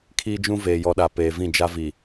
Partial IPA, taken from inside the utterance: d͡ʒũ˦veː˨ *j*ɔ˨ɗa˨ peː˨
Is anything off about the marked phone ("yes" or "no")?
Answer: no